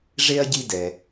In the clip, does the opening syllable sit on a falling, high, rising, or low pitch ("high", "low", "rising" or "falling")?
high